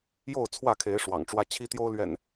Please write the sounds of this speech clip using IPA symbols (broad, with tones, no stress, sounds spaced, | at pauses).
j o˥˨ ʊ̯ t͡sʰ w ä˥˨ kʰ e˨˦ ɪ̯ ʂ w ɑ̰˨˩ ŋ ʈ͡ʂ w ä˦ t͡ɕʰ i˦ t̪ j o˦ ʊ̯ l ɥ ɛ̰˨˩ n